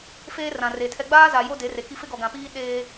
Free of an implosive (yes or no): no